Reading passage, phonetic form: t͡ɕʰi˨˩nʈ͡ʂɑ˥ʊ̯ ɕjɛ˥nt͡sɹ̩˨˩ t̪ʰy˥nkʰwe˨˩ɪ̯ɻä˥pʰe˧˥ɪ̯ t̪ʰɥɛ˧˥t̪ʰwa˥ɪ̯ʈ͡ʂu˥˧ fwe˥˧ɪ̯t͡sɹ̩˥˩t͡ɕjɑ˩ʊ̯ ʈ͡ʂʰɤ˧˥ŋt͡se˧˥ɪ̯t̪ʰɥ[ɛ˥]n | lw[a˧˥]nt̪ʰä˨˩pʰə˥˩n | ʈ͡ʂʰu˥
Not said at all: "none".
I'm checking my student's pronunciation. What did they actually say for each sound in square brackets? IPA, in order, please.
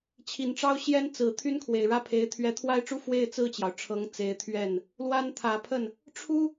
ɛ˥˩, a˥

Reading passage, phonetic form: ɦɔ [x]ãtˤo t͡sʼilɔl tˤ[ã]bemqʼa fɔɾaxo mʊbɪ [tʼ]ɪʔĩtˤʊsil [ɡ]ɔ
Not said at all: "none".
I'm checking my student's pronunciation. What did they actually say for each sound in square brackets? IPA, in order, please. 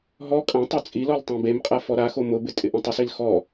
kʼ, ã, tʼ, x

